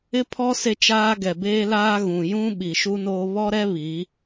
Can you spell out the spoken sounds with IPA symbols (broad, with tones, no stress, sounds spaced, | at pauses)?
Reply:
ɪ˦ pʰ ɔ˦ s e˦ t͡ʃ aː˦ ɡ ɛ˨ b eː˦ l aː˦ ɣ ũ˨ j ũ˦ ɓ i˨ ʃ u˦ n oː˦ β ɔ˦ ɾ ɛ˦ β i˨˦